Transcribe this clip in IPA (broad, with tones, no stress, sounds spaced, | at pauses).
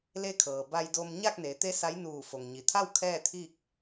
l e˧ kʰ ɤː˩ b a˧ j d o˧ m ɲ a˥˨ k̚ n e˩˧ t̪ e˧˥ s a˧˥ j n uː˧˩ f o˩ ŋ ɲ i˩ t̪ʰ a˥˨ w kʰ ɛː˥˨ t̪ʰ i˥˨ k̚